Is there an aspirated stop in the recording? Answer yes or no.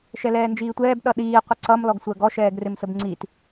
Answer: no